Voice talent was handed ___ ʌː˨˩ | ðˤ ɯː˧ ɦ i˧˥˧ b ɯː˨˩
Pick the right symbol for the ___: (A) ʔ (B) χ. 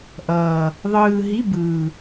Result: A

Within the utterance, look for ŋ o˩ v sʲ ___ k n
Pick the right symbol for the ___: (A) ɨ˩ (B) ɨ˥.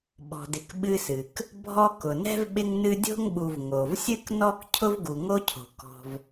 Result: B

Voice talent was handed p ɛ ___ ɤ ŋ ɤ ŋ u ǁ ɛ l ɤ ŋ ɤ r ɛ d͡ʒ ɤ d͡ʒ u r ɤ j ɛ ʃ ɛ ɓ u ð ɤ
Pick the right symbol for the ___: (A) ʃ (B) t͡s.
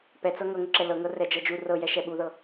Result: B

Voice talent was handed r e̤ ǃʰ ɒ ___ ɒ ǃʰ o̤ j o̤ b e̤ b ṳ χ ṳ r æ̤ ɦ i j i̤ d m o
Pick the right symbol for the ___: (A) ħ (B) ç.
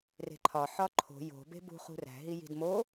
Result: A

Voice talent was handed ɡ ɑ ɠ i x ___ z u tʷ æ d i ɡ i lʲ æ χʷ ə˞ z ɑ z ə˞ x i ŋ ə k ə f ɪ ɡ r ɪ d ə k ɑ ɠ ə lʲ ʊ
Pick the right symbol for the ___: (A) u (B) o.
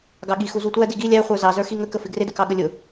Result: A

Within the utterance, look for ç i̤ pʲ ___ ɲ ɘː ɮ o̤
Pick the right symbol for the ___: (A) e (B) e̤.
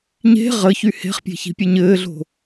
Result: A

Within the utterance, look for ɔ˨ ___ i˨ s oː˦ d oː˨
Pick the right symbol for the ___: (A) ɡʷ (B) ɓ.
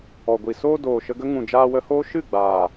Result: A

